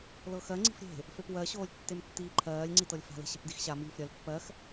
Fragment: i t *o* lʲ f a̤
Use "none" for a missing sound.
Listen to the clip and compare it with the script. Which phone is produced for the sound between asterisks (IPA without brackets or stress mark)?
ɤ